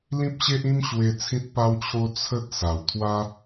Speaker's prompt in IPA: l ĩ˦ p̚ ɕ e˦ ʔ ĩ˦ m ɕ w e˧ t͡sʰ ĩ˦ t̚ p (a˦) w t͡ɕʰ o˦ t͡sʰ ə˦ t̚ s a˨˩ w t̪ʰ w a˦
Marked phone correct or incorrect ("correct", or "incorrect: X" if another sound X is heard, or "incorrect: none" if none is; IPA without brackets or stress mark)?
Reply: correct